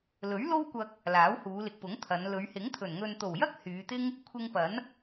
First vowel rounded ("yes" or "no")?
yes